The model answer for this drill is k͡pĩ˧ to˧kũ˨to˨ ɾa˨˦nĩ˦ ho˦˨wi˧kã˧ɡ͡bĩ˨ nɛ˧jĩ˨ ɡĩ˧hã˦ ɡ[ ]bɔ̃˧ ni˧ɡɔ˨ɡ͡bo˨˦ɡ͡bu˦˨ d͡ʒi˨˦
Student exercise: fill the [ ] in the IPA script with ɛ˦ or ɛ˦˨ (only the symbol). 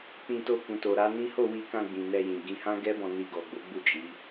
ɛ˦